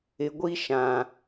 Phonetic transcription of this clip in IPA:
ɪ˨ ɡʷ i˦ ʃ ã˨

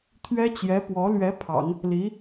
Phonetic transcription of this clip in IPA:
t̪ʰ ɥ ɛ˥ t͡ɕ j ɛ˧˥ p w ɔ˧˥ l ɥ ɛ˧˥ pʰ ɑ̰˨˩˦ ŋ | l i˧˥

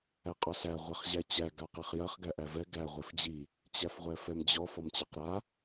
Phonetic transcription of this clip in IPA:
æ qʼ ɔ s æ ʁʷ ɛ χ ʑ æ t͡ɕ æ ɡ a q e χ j ɐ χ ɡ æ ʔ æ v ɛ ɡ æ ʁʷ e f d͡ʑ i | t͡ɕ æ f ʁʷ ɛ f ɛ m d͡ʑ ɔ f ɔ m t͡ɕ a q ɾ a

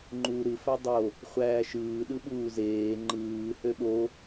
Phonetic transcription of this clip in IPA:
ŋ͡ǃ uː ɾ ɯ f æ dˤ o | χʷ æː ʃ ɯː ɗ ɯ ɓ uː z eː ŋ͡ǃ ɯː h ø ɓ o

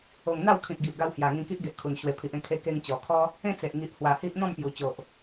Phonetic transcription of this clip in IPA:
o˨˩ ŋ n̪ a˥˧ w kʰ ĩ˨ t̚ ɡ i˨ ʔ ɡ a˧ w h j a˨˩ ŋ ĩ˧ k i˦ ʔ ɡ e˨ ʔ kʰ u˨˩ n ɕ w e˨˩ pʰ i˨ ʔ ẽ˧ kʰ e˧ k e˧ ŋ t͡ɕ ɔ˨˩ kʰ ɔ˦ | ẽ˥˧ t͡s e˨ ʔ ŋ i˨ ʔ h w a˨˩ h i˦ ʔ n̪ ɔ̃˥˧ m p j u˨˩ t͡ɕ o˨ ʔ

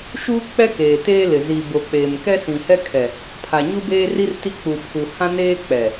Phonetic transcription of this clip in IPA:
ʃ uː˦ k͡p ɛ˦ k eː˨ t eː˦ l ɪ˨ z i˨ b o˨ k͡p eː˨ m k ɛ˦ s ĩ˨ h ɛ˦ kʰ ɛ˨ | pʰ a˨ ɲ u˦ b eː˦ r i˦ r t i˦ k͡p u˨ pʰ u˨ h ã˦ n eː˦ k͡p ɛ˨

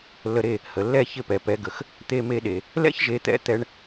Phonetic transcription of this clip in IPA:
lː ə˧ ɾ e˥˩ | h ə˩ lː ɛ˥˩ ç ɪ˥˩ p ɛ˩ p ɛ˩˥ ɡ ə˩ x | t̪ e˧ m e˧ ɗ e˩ | l ɛ̰˥ ç ʒ e˩˥ t̪ ɛ̰˧ t̪ ɛ˧ ɳ

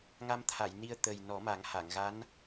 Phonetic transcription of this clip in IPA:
ŋ a˧ m t̪ʰ a˨˩˨ j n i˧ ə̯ t̪ ə˨˩ j n ɔ˨˩˦ m a˨˩˦ ŋ h a˨˩˨ ŋ ɣ a˧˥ n

